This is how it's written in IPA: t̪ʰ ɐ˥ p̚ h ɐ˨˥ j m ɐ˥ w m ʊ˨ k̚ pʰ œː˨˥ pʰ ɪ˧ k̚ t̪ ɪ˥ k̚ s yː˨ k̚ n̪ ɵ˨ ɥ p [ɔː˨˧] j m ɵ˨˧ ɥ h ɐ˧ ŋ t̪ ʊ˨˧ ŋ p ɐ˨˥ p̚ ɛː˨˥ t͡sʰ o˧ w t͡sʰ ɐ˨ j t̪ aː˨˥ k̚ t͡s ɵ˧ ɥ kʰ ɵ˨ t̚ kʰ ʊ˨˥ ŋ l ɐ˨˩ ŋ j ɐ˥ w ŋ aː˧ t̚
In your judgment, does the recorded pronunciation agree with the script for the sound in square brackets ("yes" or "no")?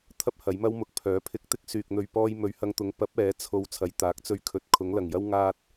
no